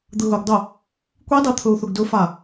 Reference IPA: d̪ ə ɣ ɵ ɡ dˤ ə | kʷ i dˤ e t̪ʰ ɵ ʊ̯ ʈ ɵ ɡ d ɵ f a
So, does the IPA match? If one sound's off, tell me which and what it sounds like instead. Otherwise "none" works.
ʈ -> θ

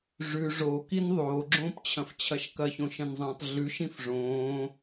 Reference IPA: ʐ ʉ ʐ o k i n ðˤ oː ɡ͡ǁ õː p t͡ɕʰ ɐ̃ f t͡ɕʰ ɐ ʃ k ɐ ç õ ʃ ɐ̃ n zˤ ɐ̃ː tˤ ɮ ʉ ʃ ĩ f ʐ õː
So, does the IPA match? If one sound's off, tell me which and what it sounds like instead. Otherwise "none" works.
none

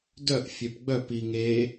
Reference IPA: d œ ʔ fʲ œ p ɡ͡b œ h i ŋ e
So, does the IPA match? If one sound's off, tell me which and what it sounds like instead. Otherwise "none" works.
h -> p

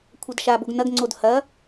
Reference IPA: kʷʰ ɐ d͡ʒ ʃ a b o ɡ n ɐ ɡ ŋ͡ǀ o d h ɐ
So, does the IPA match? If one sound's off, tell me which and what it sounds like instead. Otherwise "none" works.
d͡ʒ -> d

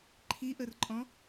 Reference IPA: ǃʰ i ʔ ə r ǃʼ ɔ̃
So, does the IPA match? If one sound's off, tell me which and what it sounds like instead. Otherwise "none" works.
none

